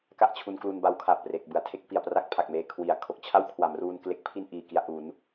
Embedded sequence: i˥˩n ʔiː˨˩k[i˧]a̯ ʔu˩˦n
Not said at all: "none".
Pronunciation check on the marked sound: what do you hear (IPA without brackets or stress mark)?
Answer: i˧